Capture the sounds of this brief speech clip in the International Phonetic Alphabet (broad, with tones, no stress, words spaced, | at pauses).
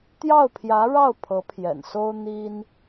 t̪jɑ˥˩ʊ̯pʰjä˧˥ɻɑ˥˩ʊ̯ pʰɤ˧˥pʰjɛ̰˨˩nso˥ʊ̯ n̪i˥n